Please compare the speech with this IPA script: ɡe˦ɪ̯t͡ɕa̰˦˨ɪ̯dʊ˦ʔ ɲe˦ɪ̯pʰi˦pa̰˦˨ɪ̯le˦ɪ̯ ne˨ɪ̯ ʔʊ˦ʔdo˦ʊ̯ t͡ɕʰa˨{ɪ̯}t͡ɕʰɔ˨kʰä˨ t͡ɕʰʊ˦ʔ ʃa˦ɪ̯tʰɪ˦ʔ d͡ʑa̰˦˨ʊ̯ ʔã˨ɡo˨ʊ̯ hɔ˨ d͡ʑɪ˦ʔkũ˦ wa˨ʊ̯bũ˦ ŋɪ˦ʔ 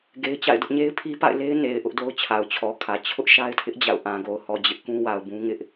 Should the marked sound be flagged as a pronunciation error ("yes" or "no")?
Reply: yes